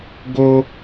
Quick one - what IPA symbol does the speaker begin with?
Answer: ɡ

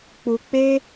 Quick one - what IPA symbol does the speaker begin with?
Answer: k͡p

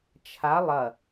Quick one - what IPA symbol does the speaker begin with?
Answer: t͡ʃʰ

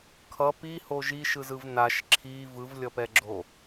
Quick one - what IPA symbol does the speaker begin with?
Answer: kʰ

